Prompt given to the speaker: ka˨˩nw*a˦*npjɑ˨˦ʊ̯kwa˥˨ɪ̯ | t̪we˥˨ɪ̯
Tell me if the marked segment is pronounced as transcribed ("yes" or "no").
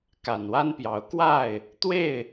yes